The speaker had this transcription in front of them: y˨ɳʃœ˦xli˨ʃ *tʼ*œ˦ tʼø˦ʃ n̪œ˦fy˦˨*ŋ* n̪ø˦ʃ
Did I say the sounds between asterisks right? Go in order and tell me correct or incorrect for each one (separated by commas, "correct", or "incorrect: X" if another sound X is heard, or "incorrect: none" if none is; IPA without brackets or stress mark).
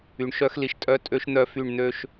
correct, incorrect: ɳ